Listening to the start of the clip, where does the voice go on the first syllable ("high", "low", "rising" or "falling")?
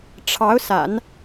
rising